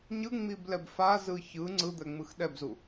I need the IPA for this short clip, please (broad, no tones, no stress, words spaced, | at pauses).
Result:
ɲɯŋ͡miblɛb fazɯ çɯ ŋ͡ǀɯd̪ɛŋ͡mɯx ɗɛbzu